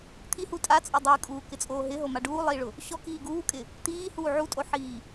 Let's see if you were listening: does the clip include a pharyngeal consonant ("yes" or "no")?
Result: yes